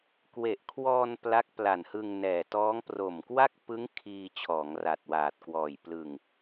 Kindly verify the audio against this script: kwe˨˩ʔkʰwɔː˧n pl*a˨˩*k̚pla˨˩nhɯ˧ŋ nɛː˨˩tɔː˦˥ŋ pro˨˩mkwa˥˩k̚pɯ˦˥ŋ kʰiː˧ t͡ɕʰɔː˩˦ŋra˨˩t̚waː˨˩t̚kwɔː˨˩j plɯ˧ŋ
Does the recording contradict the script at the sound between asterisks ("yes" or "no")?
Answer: yes